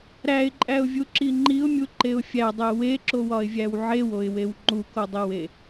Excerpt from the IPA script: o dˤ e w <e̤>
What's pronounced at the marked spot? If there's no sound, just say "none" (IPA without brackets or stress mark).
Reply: e